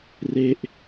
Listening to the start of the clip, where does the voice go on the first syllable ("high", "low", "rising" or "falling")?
falling